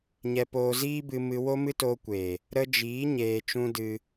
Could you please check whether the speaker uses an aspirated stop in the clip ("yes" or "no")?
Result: no